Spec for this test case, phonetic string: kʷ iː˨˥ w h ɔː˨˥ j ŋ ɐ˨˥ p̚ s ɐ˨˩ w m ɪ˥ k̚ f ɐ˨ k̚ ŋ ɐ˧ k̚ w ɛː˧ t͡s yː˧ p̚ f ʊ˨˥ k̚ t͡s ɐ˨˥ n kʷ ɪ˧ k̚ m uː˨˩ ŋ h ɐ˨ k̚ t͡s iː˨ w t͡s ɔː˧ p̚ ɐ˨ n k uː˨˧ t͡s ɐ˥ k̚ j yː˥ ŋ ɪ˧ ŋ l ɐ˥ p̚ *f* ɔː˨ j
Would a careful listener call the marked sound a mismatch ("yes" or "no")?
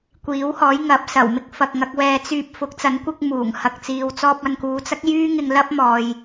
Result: yes